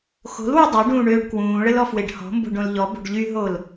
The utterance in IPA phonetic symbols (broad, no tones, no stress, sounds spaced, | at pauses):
x o̤ l w u dˤ œ ɖ ũː ɳ øː ɖ k w ũː ɭ ə l ɔ f w e ɖ h ɔ̤ m b o̤ ɖ õ l ʎ ɔ b o̤ ɖ ʎ y ɦ o l